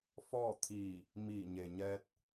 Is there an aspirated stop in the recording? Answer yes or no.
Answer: yes